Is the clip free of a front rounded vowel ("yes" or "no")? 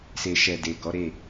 yes